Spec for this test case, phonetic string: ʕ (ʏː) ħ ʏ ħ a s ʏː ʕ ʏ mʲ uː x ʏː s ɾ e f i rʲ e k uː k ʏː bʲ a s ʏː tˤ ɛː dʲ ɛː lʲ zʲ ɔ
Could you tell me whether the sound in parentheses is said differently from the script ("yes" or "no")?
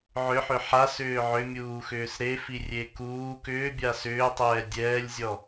yes